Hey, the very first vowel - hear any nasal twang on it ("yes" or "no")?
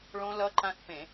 yes